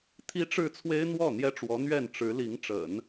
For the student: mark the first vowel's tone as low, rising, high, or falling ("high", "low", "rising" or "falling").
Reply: high